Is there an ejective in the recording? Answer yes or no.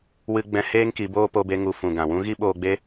no